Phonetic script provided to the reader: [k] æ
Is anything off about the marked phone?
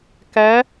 no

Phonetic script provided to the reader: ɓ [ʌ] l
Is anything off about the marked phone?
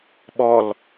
yes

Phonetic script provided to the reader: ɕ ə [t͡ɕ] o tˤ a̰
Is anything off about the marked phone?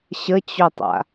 no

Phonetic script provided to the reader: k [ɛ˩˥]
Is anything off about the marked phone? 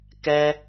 yes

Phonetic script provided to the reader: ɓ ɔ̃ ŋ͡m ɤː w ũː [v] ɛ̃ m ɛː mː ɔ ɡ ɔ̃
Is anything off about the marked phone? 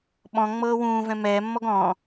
no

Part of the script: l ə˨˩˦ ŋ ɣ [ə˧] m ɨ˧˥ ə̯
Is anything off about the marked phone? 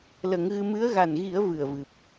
yes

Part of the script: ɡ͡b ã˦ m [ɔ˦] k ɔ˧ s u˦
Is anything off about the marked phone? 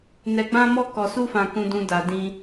no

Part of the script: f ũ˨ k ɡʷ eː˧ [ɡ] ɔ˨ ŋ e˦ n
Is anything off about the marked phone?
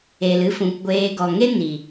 no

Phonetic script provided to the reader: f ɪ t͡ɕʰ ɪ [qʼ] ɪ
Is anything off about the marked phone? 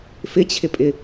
yes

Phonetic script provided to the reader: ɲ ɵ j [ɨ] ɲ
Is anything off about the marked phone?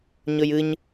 no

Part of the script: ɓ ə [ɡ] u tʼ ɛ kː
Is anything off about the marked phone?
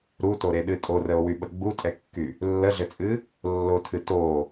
yes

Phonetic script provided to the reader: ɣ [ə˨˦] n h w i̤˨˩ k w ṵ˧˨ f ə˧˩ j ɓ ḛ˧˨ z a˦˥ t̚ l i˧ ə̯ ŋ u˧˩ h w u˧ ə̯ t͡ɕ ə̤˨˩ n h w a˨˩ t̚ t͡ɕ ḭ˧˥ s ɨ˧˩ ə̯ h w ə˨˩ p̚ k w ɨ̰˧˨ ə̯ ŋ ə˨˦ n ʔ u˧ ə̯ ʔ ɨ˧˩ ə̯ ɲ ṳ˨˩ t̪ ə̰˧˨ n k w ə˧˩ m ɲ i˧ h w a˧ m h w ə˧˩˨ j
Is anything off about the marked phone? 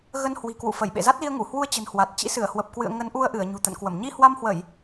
yes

